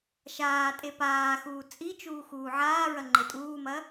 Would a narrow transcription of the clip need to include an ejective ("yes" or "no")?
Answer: yes